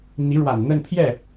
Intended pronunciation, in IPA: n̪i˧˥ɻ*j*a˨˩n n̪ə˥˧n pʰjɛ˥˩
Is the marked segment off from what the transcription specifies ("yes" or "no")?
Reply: yes